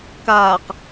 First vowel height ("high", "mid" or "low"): low